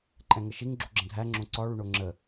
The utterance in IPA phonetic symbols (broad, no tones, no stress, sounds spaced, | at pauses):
ǃʼ ɛ̃ ŋ ə ʃ i ŋ ɡ͡ǁ u ɡ͡ǁ ə̃ dʱ æ ŋ͡ǁ õ ǀ ɒ ɭ u ɳ o ŋ͡ǁ ə